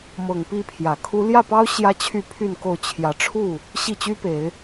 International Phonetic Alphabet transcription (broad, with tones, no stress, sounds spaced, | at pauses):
m ɤ˨˩ ŋ p i˥˨ pʰ j ä˨˩ kʰ u˦ l j ä˥˨ p ɑ˦ ʊ̯ ɕ j ä˦ t͡ɕʰ y˥˨ pʰ y˥˨ n k o˥˨ ʊ̯ t͡ɕʰ j ä˨˦ ʈ͡ʂʰ u˥˨ | ɕ i˥˨ t͡ɕ y˦ p e˨˦ ɪ̯